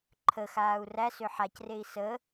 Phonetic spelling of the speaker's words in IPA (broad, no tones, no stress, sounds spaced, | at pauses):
ǃʰ ə x aː u̯ r æ s ø ħ a c r e i̯ s ə